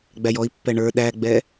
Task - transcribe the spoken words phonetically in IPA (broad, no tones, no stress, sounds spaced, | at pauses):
ɡ͡b æ j ɔ i̯ pː ɛ ɳ ə˞ ɗ æ ɡ͡b ɛ